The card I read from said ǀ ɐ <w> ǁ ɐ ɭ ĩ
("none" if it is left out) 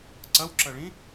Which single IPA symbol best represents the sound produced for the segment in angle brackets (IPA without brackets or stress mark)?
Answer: w